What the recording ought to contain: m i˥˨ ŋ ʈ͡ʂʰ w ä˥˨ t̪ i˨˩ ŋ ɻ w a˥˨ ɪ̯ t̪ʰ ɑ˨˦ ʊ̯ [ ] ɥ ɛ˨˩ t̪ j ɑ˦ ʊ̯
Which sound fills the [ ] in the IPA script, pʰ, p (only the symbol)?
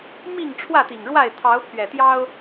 pʰ